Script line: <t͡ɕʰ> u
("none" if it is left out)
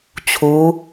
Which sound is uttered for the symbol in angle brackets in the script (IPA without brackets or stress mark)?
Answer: t͡ɕʰ